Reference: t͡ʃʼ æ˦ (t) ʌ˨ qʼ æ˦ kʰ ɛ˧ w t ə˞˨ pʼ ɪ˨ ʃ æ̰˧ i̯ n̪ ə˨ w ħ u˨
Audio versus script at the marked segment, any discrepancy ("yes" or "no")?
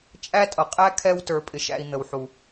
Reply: yes